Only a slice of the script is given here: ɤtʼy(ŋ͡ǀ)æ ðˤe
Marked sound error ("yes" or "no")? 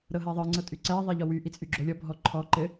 yes